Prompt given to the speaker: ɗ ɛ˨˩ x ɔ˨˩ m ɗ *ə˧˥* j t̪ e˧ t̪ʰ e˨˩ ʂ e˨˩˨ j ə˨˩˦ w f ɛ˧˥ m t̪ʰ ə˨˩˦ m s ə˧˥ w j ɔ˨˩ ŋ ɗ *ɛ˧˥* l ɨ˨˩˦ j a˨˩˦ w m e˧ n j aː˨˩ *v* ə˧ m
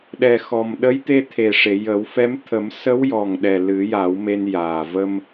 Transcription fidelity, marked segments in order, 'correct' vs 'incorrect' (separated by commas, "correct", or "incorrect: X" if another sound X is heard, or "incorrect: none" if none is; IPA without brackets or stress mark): correct, incorrect: ɛ˨˩, correct